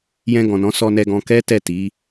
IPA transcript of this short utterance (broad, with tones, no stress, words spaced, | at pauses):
jɛ̃˧ɡɔ̃˨nɔ̃˨˦ sɔ˧nɛ˧ɡɔ̃˧ kɛ˦tɛ˦˨ti˨˦